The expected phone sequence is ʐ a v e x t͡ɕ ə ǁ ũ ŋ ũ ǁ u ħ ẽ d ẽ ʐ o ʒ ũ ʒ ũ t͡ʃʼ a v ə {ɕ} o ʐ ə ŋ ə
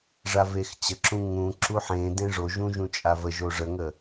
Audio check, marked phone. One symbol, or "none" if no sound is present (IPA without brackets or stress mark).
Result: ʒ